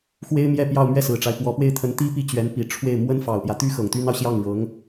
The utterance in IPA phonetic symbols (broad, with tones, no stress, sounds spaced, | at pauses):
x w e˥ ɪ̯ m j ɛ˥˧ p j ɑ˥˧ ʊ̯ m ɥ ɛ˥˩ s ɹ̩˨˩ ʈ͡ʂ a˦ ɪ̯ p w ɔ˧˥ p w e˥˩ ɪ̯ t̪ʰ ə˧˥ n t̪ i˥ p i˥˩ t͡ɕ ɥ ɛ˧˥ n p i˨˩ ʈ͡ʂʰ w e˥˩ ɪ̯ m w ə˥ n f ɑ˨˩ ʊ̯ p j ä˦ t̪ y˥ x ɤ˨˩ ŋ t̪ y˥ n ɑ˨ ʊ̯ ɕ j ɑ˥˩ ŋ ɻ ɤ˧˥ ŋ